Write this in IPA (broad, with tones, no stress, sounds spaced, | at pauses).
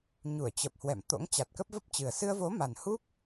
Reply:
ɲ u˧˩ ə̯ t͡ɕ ə˨˩ p̚ h w ɛ̰˧˨ m t̪ o̰˧˥ ŋ t͡ɕ a˨˩ t̚ k ə˦˥ p̚ v ə˦˥ p̚ t͡ɕ ɨ˨˩ ə̯ s ɨ˧ ə̯ v o˨˦ m a˨˩ n h u˦˥ k̚